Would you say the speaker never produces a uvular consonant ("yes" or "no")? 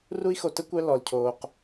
no